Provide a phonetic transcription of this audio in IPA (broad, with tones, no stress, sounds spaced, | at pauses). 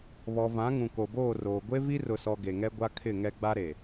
β ɔ˨ v ã˨˦ ŋ ũ˨ k o˨ b oː˦˨ r oː˨ ɡʷ e˦ v i˦ r ʊ˨ s ɔ˨ ɡ e˨ ŋ ɛ˦ ɡʷ a˦ kʰ ɪ˦˨ ŋ ɛ˦ ɡ͡b a˦ ɾ e˨